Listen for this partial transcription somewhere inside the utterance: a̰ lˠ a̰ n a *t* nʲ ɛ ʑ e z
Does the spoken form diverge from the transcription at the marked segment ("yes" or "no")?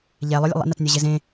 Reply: no